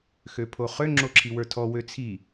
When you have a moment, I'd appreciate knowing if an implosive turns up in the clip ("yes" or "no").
no